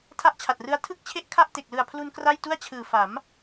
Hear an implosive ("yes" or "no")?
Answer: no